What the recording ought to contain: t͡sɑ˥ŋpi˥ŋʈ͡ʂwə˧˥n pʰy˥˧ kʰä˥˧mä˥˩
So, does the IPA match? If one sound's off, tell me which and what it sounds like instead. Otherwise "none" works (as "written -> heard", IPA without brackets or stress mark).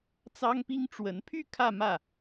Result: none